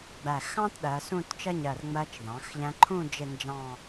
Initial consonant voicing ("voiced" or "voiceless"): voiced